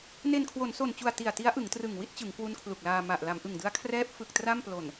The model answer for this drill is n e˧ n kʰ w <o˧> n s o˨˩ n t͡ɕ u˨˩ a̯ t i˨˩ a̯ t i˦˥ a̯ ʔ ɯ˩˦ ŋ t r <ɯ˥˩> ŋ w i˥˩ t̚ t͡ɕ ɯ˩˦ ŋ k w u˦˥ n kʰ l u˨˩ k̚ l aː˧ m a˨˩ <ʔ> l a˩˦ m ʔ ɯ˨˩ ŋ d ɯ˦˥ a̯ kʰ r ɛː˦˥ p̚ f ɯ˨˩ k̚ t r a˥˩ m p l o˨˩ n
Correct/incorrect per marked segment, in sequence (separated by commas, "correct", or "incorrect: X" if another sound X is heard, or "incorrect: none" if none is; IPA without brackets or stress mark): incorrect: o˩˦, incorrect: ɯ˨˩, correct